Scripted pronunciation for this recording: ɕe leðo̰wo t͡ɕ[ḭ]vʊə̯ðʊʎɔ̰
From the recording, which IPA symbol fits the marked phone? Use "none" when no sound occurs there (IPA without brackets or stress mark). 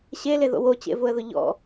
ḛ